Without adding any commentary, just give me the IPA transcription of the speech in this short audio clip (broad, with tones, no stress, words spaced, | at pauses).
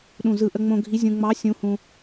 ɗũ˧˩zɯ˧˩ ʔə˧ŋ͡mõ˧ɡʱi˧˥ zʲũ˧ŋ͡mɑ˧˥ sʲũ˧˥hũ˧